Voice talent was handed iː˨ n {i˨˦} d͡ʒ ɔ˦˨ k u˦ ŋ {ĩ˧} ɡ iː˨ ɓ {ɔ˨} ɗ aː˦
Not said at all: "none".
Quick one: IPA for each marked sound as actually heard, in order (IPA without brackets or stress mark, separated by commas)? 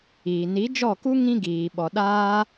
i˨˦, ĩ˦, ɔ˨